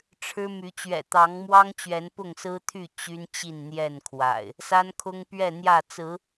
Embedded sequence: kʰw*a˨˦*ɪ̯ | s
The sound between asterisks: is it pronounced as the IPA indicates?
no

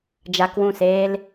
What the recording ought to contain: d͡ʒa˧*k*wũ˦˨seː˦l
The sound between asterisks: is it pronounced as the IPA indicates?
yes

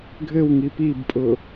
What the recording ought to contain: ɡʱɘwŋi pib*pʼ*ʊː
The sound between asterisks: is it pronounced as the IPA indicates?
yes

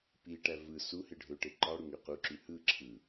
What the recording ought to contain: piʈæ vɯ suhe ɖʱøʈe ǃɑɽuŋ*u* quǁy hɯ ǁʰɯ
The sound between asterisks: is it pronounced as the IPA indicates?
no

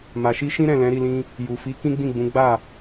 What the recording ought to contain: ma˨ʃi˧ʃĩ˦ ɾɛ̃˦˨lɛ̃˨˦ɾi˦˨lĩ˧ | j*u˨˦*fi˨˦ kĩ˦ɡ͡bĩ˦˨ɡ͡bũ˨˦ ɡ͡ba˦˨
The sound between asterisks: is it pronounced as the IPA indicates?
no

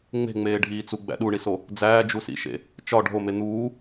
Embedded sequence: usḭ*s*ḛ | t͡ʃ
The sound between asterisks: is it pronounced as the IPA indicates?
no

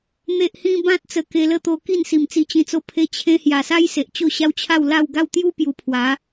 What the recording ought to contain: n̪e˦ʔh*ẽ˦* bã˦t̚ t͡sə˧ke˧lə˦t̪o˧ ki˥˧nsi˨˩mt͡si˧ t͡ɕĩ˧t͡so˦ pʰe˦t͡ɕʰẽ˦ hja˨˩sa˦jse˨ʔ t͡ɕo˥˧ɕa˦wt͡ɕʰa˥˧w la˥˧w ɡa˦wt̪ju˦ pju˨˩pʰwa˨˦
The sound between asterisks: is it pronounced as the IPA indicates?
no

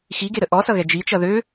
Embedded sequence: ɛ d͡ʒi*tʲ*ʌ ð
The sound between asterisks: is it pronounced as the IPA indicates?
no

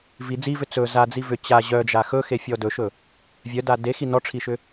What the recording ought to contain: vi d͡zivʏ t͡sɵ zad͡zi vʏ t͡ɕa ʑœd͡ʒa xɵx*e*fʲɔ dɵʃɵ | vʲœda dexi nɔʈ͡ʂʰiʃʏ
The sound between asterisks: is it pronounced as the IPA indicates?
yes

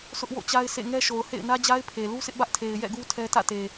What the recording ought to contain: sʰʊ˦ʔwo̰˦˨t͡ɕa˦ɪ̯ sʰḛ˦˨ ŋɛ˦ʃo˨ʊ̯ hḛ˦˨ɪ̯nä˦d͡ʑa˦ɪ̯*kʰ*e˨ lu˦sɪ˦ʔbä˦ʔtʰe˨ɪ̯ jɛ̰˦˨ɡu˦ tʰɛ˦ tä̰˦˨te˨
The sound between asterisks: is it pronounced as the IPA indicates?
no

